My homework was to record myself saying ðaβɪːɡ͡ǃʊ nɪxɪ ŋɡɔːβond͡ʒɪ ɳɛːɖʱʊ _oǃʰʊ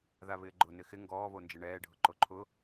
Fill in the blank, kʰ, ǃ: ǃ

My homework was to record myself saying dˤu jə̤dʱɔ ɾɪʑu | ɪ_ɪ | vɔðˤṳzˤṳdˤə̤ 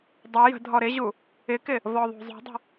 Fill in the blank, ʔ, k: k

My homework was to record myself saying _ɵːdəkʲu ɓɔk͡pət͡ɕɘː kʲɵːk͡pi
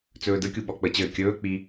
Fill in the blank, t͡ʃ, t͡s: t͡s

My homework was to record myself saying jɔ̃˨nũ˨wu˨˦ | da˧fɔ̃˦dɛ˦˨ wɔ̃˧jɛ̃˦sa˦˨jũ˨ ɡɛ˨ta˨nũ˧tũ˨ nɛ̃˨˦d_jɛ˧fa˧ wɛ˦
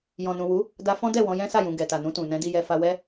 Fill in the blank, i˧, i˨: i˧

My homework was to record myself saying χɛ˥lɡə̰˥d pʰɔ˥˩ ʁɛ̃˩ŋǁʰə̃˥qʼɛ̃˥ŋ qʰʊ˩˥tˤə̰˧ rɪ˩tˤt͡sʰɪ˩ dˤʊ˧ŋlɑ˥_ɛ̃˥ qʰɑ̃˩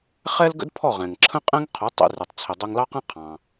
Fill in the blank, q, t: q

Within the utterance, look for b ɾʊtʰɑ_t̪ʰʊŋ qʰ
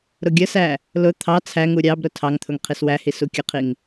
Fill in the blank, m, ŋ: ŋ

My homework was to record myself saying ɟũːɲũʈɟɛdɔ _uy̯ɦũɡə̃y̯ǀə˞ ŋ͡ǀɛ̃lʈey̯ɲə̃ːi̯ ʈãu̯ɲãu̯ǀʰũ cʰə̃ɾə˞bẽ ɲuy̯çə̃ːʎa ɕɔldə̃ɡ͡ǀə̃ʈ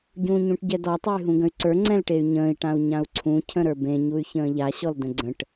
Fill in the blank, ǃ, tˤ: tˤ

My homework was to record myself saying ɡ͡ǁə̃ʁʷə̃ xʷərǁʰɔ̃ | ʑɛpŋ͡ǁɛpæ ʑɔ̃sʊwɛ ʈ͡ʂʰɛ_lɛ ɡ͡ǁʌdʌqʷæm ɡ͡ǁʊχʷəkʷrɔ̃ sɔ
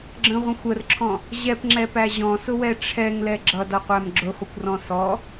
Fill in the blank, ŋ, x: ŋ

